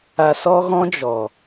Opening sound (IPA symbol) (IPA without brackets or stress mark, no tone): a